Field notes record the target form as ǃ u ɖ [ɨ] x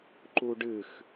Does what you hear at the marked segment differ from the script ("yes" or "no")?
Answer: no